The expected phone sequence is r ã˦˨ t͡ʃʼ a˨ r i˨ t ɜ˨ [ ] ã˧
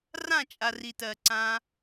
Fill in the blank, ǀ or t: ǀ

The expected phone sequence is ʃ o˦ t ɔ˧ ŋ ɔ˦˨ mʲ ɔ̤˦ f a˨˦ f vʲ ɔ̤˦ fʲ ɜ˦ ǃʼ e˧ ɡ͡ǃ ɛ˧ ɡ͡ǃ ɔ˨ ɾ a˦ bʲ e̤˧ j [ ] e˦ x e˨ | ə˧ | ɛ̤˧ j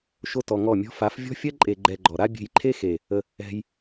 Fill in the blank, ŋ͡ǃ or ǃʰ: ǃʰ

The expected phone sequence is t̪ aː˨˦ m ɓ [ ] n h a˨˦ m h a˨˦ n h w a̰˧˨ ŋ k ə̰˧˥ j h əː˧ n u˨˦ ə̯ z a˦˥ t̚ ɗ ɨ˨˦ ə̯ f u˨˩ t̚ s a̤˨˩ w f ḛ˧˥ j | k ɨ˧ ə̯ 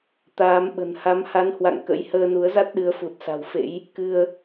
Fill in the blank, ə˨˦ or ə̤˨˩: ə̤˨˩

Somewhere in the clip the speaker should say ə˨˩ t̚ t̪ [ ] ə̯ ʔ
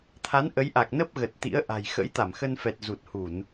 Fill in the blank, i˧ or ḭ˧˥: ḭ˧˥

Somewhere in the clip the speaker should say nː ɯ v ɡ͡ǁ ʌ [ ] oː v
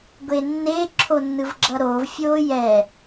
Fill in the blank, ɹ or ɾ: ɾ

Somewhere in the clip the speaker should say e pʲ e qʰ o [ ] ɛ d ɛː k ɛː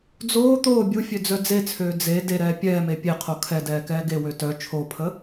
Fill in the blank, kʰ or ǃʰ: kʰ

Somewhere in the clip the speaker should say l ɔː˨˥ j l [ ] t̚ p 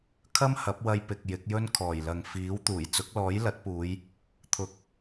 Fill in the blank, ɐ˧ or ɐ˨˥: ɐ˨˥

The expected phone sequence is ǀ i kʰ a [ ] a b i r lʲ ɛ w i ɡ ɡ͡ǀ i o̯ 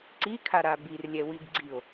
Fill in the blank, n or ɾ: ɾ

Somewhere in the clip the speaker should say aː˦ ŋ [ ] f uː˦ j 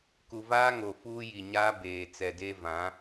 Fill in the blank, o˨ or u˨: o˨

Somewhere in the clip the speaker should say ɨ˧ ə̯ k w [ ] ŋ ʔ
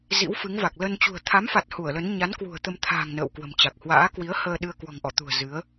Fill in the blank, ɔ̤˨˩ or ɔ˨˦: ɔ̤˨˩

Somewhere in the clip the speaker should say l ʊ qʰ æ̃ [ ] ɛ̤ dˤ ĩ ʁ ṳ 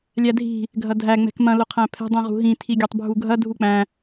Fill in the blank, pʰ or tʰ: pʰ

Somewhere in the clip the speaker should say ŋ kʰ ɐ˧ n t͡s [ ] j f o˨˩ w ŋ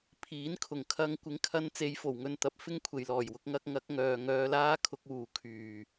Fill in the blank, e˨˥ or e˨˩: e˨˥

